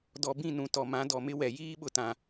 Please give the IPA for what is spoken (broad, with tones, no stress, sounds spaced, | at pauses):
d ɔ˨ b ĩ˦˨ n ũ˨ t ɔ˨ m ã˨˦ d ɔ˨ m ɪ˦ w ɛ˨ j iː˦ ɓ ʊ˨ t ã˨